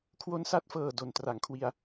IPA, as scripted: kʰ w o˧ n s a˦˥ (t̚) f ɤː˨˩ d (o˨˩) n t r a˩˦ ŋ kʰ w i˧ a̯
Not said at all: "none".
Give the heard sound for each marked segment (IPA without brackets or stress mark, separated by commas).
t̚, o˨˩